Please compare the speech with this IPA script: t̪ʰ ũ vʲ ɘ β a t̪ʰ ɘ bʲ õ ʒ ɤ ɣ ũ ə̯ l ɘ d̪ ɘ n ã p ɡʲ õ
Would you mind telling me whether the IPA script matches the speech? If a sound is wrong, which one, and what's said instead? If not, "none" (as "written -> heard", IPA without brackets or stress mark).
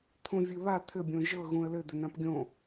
none